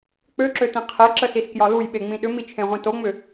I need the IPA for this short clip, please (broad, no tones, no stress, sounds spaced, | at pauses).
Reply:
k͡p ø ǁ ø t ĩ qʰ e ǁ ə s i s k j ɒ l u j ɓ e ŋ͡m ĩ ɗ ʏ m i t͡ʃʰ ẽ ʁʷ ĩ t o ŋ͡m ʏ